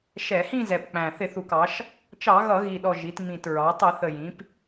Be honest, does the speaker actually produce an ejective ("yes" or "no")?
no